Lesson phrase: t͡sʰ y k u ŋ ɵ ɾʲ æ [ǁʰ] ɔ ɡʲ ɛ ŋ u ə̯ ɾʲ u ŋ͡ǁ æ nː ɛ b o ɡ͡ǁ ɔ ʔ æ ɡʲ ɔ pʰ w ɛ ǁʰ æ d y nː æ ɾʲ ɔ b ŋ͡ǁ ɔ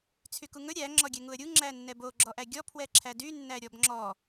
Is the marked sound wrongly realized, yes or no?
yes